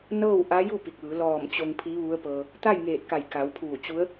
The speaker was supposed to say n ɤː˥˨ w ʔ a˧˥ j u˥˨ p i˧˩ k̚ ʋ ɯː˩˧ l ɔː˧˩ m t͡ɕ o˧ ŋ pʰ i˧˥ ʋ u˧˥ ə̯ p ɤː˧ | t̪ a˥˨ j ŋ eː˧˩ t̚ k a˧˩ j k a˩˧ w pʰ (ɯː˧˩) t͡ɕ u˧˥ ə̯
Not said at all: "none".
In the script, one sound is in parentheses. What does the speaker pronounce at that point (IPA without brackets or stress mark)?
uː˧˩